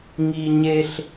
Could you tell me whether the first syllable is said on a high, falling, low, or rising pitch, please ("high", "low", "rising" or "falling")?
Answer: high